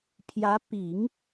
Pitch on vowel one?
rising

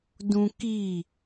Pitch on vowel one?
high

